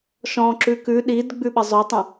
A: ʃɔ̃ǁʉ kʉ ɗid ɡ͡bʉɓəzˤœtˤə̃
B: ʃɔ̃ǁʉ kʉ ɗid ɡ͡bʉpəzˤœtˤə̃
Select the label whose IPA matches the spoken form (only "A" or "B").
A